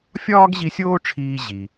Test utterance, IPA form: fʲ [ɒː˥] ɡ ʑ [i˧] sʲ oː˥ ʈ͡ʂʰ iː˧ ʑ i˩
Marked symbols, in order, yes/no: yes, yes

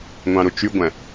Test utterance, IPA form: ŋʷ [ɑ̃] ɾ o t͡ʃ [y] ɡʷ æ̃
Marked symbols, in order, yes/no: yes, yes

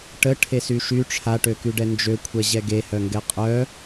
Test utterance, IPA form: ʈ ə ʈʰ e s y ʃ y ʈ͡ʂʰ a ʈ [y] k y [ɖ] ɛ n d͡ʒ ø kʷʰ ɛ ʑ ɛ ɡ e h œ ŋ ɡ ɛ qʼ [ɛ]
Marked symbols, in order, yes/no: no, yes, no

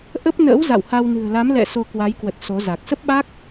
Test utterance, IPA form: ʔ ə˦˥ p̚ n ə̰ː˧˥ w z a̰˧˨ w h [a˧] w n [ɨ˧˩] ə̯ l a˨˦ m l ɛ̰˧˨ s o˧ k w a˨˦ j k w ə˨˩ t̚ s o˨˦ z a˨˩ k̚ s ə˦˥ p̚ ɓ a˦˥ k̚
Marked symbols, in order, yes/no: yes, no

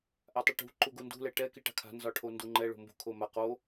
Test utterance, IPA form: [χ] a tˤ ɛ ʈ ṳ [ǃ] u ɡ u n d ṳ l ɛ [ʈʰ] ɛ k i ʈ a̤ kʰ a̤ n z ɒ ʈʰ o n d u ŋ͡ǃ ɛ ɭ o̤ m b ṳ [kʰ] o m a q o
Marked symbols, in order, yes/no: no, yes, no, yes

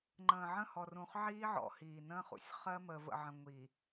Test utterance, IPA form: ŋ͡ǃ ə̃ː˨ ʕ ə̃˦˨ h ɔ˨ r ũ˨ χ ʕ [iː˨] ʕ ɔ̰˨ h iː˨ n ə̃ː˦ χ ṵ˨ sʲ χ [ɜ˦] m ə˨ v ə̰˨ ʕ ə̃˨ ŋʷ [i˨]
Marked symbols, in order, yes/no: no, yes, yes

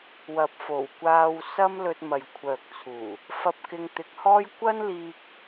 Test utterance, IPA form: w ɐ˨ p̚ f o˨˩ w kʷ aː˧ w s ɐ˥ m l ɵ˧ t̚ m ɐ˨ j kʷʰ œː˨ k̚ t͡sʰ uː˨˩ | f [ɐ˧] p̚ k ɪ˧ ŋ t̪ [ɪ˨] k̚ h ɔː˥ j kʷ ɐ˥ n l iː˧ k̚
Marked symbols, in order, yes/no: yes, yes

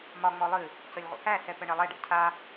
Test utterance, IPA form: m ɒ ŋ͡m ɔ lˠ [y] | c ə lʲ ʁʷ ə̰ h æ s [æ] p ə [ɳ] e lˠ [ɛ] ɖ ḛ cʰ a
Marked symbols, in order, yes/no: no, no, yes, yes

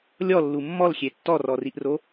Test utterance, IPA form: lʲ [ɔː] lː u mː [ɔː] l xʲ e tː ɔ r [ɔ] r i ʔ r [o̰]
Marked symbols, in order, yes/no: no, no, yes, no

